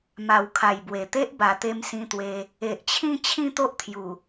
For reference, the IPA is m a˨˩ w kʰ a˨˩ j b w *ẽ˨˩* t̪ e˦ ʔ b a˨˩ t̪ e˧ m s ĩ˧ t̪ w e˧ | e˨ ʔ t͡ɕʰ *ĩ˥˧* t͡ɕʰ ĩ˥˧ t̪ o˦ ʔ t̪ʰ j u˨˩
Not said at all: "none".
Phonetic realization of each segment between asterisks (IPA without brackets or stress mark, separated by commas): e˨˩, ĩ˥˧